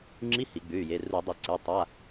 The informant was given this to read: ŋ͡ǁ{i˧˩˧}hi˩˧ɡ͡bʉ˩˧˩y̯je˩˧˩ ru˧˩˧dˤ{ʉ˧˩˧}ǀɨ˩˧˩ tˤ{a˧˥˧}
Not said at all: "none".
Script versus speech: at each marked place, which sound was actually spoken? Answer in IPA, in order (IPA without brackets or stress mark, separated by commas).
i˧˥˧, ɨ˧˩˧, a˧˥˧